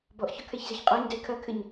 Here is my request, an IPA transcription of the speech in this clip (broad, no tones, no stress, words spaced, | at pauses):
bɔʔçɔkʰɛçzeç qʼɔɲdɛ kʰɐkʰɘɲ